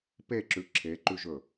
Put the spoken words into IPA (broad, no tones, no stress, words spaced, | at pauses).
peǁʉ ǁʰeǃʉʒɵ